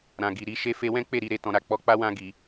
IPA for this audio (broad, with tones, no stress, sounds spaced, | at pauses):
ɾ ã˨ ɡ i˨ ɾ i˧ ʃ e˧ f e˧ w ɛ̃˦ k͡p e˦˨ ɾ i˧ ɾ e˨ t ɔ̃˨ ɾ a˨ k͡p ɔ˧ k͡p a˦ w ã˧ ɡ i˨